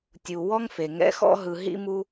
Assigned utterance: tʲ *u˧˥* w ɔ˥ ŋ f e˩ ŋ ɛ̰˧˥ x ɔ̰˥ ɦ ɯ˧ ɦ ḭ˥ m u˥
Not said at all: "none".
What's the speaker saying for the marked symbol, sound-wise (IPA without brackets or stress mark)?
u˩